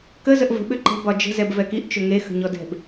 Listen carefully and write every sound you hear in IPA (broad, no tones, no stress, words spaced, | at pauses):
kə zəʔvə̤ ɓʏǃə̤ bɒd͡ʒə̤ zɛbvɛkiʔ t͡ʃʏŋe xə̤ɲɔdɛ̤b